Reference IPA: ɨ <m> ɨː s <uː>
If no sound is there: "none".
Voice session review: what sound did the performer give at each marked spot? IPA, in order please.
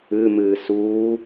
m, uː

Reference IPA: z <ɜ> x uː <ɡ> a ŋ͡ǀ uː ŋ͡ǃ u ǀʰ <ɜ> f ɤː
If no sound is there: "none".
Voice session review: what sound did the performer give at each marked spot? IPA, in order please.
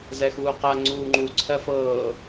ɛ, q, ɜ

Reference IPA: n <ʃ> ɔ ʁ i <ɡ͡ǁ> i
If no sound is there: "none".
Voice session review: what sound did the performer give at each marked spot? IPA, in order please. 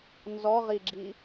z, ɡ͡ǁ

